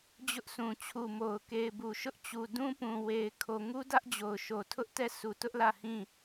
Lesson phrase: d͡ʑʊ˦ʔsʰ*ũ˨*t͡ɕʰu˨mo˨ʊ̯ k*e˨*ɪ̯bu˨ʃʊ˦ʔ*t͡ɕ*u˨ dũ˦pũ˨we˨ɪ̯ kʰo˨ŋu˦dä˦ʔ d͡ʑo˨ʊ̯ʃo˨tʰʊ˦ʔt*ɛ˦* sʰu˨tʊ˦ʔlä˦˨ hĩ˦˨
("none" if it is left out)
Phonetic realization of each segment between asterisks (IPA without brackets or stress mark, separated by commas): ũ˨, e˨, t͡ɕ, ɛ˦˨